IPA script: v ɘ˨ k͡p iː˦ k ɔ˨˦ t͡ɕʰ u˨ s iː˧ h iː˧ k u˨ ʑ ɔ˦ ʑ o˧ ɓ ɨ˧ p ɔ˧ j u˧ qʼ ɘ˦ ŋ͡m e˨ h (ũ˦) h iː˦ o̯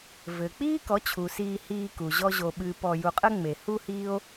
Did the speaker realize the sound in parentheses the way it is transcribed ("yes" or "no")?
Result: no